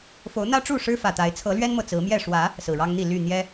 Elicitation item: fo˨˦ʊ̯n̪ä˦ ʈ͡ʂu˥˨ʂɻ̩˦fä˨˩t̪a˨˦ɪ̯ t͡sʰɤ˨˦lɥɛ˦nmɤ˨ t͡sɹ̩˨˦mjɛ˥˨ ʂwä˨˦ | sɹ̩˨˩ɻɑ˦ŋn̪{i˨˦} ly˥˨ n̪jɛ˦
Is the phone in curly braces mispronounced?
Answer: yes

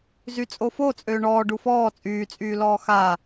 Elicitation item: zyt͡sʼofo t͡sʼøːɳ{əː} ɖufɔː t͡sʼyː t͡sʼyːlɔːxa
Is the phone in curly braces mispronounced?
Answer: yes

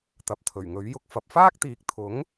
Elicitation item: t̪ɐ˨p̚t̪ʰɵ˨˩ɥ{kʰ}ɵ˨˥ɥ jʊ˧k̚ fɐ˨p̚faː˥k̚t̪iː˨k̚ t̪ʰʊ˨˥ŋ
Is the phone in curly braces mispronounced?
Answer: yes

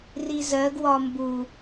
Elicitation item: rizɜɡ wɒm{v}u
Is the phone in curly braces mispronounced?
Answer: yes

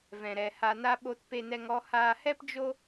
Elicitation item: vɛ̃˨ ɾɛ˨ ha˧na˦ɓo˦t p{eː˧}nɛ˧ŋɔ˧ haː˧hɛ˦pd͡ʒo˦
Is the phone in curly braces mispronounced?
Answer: yes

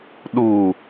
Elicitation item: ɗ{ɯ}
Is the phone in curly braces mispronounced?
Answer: yes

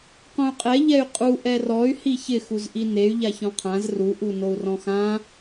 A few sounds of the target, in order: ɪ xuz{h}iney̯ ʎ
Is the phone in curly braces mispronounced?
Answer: yes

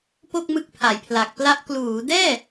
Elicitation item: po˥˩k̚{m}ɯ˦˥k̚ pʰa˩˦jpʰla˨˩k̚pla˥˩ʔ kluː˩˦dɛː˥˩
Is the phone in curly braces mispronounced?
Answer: no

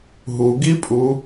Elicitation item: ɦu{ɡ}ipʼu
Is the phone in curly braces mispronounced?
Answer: no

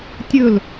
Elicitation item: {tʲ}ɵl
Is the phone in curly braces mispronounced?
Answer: no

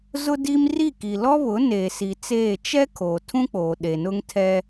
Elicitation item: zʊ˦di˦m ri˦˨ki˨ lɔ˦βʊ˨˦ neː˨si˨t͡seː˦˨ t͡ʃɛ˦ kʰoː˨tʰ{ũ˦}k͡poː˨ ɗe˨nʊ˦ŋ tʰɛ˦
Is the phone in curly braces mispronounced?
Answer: no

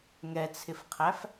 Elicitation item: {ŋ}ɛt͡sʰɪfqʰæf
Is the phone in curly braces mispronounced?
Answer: no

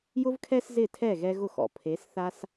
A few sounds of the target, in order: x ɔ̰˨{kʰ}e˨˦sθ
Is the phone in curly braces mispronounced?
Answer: yes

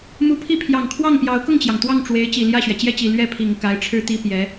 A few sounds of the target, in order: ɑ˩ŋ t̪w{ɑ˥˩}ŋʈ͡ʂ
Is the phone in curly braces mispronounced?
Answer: no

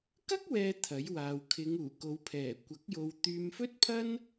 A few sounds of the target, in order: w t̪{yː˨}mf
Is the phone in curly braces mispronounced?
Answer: no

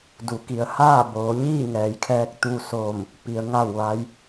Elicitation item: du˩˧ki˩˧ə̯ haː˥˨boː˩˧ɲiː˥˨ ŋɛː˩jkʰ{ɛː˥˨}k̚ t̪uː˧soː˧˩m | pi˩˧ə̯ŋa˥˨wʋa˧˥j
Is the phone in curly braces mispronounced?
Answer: yes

